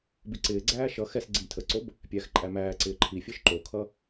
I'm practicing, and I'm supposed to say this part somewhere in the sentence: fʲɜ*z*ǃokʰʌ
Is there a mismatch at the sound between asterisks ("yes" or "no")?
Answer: yes